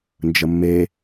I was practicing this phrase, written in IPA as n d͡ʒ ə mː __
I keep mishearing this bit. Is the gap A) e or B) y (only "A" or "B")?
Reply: A